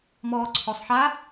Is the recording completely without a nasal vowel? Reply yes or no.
yes